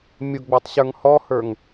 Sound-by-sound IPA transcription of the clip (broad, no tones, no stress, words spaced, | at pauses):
mʲʊɡ͡bə˞tˤ ɕə˞ŋhɔhə˞ŋ